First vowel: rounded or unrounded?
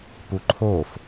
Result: rounded